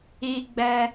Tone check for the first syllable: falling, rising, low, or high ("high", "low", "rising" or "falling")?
high